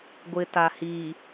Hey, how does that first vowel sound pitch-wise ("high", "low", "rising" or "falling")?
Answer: low